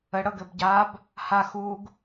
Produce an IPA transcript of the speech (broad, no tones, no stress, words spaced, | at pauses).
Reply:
əɽɤ ɡɘbɟab | ha xuɡ